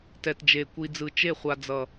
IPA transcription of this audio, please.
t ɛ˨ t d͡ʒ e˨ kʷ i˨ d͡z ɯ˨ t͡ʃ e˦˨ χʷ a˨ d͡z ʌ˨

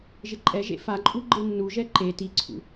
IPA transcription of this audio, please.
ʒ ɪ ǃʼ ɛ ʒ ḛ f a ǃʼ u ɡ͡ǃ e nː u ʒ ɛ ǃ e t i ǀʰ ṵ

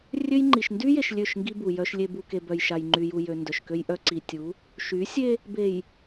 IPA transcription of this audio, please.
rʲ ø˦ j ŋ͡ǃ i˨ ʃ n d y˦ j e˨ ʃ lʲ ø˦˨ ʃ ŋ ɡ i˦ b u˨ j œ˨ ʃ lʲ e˨ b u˨ k e˨ b œ˨ j ʃ a˨ j ŋ͡ǃ y˨ j u˨ j ø˨ n d œ˨ ʃ k ø˦ j ʔ œ˦ ǀ i˨ tʲ u˨˦ | ʃ y˨˦ sʲ e˦ | b e˨ j

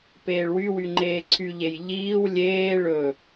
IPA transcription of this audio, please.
p eː ɭ w y w y ŋ͡ǃ eː ǀʰ y ʎ e j ʎ iː w lʲ eː ɭ ɵ

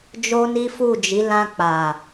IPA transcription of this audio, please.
d͡ʒ o˦ n i˦ f u˦˨ d͡ʒ i˨˦ l ã˧ k͡p a˨

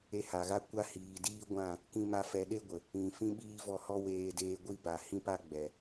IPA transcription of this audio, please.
e˧ h a˨ ɣ a˦ kʷ a˧ h iː˨ d iː˦ ɡʷ ã˦˨ | k ĩ˦ m a˦ f ɛ˧ ɗ e˦ ɡʷ ə˨ | ĩ˨ f ĩ˦ ɓ iː˦ v ɔ˧ h ɔ˦ w eː˧ d eː˧ ɡʷ i˦ b a˨ h ĩ˦ p a˦ ɡ͡b ɛ˨

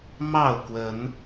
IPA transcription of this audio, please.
m ɑ˥˨ ʊ̯ k w ə˨˦ n

